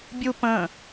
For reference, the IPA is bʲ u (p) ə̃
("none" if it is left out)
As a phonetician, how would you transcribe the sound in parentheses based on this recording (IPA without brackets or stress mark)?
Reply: p